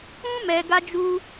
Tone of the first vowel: high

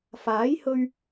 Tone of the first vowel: rising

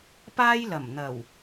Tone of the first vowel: high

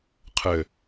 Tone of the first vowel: low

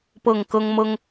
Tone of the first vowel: falling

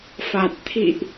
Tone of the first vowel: low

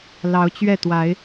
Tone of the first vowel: rising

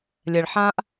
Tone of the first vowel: low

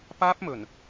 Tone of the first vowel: high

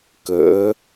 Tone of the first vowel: rising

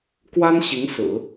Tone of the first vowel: high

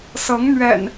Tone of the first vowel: rising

